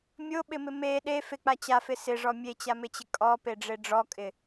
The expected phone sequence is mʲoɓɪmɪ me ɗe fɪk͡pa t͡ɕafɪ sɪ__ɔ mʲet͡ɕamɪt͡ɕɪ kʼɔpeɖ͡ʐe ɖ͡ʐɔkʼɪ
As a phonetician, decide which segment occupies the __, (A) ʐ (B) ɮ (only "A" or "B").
A